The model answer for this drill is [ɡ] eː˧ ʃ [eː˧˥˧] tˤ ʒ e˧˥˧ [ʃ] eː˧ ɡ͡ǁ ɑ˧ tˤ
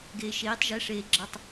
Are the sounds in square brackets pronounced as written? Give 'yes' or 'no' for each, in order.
yes, no, no

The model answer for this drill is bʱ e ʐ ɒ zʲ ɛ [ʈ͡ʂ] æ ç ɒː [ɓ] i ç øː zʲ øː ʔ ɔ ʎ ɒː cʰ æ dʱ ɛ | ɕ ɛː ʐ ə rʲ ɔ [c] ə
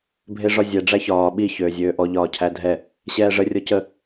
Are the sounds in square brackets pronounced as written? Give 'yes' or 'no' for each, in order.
no, yes, yes

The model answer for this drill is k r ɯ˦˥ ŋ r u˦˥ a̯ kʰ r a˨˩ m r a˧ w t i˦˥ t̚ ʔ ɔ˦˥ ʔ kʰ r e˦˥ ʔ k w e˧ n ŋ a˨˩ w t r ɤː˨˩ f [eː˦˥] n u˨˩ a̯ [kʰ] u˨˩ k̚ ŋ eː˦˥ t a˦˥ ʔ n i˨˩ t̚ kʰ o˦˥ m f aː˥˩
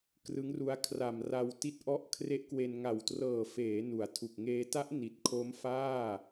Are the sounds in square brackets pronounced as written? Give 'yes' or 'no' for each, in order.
no, no

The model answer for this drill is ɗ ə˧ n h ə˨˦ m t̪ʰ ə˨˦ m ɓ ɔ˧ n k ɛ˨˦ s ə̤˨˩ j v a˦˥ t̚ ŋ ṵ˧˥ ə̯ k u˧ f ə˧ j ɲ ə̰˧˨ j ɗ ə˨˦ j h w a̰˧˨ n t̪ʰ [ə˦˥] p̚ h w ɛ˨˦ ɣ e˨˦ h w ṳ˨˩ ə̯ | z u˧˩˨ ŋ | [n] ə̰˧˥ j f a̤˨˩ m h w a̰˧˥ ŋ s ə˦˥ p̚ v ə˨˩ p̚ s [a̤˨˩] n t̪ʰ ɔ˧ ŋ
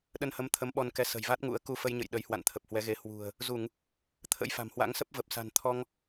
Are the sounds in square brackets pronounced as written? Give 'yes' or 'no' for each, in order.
no, no, yes

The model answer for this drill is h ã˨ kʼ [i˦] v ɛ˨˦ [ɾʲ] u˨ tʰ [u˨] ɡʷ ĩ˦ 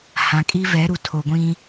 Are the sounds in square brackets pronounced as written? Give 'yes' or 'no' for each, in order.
yes, no, no

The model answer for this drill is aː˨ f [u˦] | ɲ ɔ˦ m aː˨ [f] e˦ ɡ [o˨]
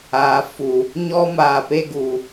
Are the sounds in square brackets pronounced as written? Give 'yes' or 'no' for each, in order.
no, no, no

